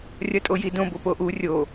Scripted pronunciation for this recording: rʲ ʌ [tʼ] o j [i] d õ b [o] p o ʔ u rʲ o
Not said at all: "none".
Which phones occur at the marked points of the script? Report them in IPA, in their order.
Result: tʼ, i, o

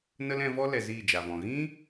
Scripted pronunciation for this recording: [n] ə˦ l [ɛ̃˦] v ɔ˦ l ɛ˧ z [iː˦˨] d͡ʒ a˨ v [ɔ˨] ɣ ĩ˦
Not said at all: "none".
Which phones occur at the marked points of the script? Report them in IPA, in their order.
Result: n, ɛ̃˧, iː˦˨, ɔ̃˨

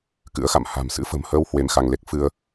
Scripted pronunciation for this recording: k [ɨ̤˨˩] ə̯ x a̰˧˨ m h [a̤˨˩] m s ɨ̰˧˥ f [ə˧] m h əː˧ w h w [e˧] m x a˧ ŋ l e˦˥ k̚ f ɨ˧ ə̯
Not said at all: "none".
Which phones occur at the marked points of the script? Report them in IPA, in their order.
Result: ɨ̰˧˥, a̤˨˩, ə̤˨˩, e˧

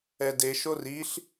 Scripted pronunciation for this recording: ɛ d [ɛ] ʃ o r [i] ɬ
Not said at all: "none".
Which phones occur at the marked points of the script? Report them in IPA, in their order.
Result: e, i

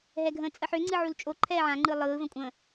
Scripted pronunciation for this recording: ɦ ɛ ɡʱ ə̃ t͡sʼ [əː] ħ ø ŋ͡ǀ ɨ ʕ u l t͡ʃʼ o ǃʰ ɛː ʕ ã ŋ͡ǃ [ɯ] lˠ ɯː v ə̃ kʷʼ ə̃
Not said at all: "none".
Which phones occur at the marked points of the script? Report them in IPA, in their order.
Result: ə, ɯ

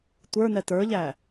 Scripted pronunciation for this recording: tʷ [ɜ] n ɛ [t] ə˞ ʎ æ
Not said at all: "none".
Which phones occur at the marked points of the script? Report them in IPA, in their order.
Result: ə˞, t

